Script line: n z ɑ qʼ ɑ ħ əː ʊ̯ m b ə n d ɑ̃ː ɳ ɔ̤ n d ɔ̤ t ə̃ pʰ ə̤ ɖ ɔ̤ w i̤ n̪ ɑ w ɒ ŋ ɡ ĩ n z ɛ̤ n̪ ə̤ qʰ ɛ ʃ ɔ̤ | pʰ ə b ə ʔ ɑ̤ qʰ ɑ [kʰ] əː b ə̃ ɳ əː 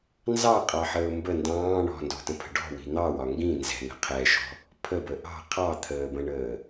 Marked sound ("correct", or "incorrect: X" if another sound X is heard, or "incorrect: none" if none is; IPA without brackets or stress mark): incorrect: t̪ʰ